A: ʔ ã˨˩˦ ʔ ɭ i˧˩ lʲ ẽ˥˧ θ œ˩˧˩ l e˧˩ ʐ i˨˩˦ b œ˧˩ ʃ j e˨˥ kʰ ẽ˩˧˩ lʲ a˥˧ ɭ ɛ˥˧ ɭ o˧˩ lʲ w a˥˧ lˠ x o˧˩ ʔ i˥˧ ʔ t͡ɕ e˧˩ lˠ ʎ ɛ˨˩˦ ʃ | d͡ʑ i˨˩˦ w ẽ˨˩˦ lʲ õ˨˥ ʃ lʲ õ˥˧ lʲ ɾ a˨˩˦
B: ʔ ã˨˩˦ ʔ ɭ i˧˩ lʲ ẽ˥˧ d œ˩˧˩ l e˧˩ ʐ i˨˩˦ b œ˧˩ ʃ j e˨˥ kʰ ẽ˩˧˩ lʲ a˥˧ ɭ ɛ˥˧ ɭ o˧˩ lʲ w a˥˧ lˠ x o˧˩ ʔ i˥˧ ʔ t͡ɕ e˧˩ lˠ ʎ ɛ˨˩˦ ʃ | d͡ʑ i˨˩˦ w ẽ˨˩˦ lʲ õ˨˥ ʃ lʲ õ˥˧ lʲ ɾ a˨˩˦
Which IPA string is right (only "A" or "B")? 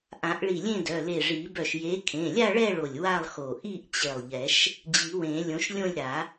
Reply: B